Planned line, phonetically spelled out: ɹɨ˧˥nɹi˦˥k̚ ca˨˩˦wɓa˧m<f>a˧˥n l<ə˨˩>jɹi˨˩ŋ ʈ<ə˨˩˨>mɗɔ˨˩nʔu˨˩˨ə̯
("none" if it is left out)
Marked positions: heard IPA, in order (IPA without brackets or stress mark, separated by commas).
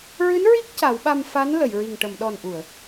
f, ə˨˩˨, ə˨˩˨